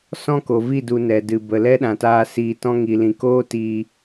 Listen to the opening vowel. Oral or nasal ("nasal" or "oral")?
nasal